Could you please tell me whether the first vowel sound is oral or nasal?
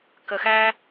oral